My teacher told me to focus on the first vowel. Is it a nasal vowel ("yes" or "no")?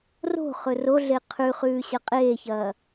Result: no